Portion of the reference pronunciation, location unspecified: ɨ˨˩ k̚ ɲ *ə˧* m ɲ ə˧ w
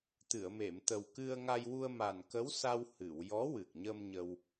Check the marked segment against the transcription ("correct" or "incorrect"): correct